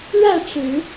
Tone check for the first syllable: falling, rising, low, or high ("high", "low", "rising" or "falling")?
falling